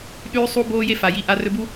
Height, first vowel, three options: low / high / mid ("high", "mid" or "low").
high